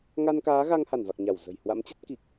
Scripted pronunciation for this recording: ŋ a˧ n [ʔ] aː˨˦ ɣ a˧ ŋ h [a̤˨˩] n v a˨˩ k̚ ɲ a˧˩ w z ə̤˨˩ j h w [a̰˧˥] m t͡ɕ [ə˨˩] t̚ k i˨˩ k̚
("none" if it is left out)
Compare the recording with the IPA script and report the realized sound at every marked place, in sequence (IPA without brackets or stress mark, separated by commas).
k, a˧˩, a̰˧˥, ə˦˥